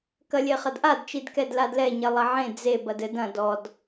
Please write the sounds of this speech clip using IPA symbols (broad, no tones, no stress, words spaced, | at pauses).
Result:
kɐlʲeχɐdʔad t͡ʃidkɛdladlɛ ɲɛlˠɐʕẽ d͡ze bɐdɘd ɐ̃ dɔd